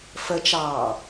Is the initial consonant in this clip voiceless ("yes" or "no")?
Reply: yes